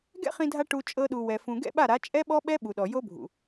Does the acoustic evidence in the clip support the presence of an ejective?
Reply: yes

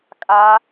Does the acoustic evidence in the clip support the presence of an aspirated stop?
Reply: no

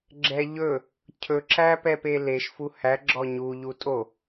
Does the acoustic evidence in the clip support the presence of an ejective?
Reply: yes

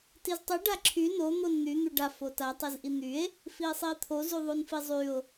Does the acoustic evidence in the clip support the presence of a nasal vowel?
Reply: no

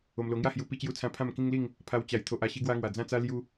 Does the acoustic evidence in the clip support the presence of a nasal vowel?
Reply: yes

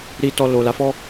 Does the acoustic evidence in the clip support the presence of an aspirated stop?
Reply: no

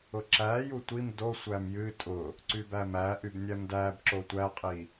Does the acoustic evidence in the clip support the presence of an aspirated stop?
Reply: no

